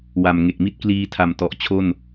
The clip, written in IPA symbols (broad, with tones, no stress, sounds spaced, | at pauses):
w a˨˩ m ŋ e˨˩ k̚ m i˥˩ t̚ k l iː˧ tʰ a˨˩ m t ɔ˨˩ ʔ t͡ɕʰ o˥˩ n